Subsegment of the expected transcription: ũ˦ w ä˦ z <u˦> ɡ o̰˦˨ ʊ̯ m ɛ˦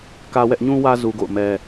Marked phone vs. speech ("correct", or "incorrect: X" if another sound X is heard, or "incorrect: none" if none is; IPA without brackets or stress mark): correct